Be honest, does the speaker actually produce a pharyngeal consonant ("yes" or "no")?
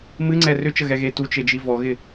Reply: no